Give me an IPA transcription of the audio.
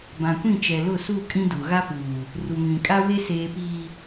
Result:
bã˨kʷĩ˦˨t͡ʃɛ˨ lʊ˦˨su˦˨ kʼĩ˦du˨ ɣa˦puː˨ | ru˨ŋĩ˨kʼa˦ we˦seː˨piː˨

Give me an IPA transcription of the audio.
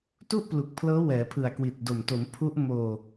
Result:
tu˥˩ʔplu˨˩k̚ pʰlɤː˦˥wɛː˩˦pʰɯ˨˩a̯ kwi˨˩t̚do˨˩m to˩˦m pʰu˦˥ʔ moː˧

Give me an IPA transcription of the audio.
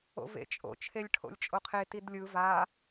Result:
o̰vḛt͡ʃʼo̰ t͡ʃʰelʲʈʰo̰lʲt͡ʃʼoqʰe tidlʲɯ va

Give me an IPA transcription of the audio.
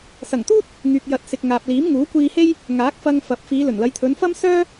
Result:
sɐ˨˩ŋt̪uː˥t̚ | ŋyː˨k̚jɐ˨˥t̚sɪ˨k̚ ŋaː˨p̚ liː˨˥mŋuː˨˥kʷiː˧he˥j | ŋaː˨˥k̚fɐ˧ŋfɐ˨˥p̚ fiː˨˧ lɵ˨˩nlɐ˨˧j t̪ʰɵ˨˧nfɐ˥msœː˥

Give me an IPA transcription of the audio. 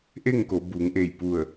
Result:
ʔe˥˨ŋko˩˧buː˩˧ŋʔe˧˩j pu˧˩ə̯

